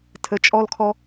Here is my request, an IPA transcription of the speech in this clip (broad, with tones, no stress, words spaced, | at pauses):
tʰə˩˧t͡ʃʼɔ˧lkʰɔ˧